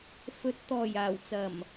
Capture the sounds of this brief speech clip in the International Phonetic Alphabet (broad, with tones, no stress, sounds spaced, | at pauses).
f ɵ˨˥ t̚ t̪ ɔː˨˩ j aː˨˩ w t͡s ɐ˨˩ m